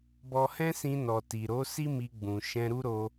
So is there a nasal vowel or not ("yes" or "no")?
yes